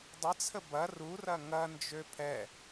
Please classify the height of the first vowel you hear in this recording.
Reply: mid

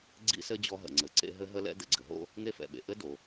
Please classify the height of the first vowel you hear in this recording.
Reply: high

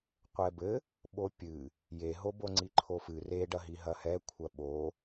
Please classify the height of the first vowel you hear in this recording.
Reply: mid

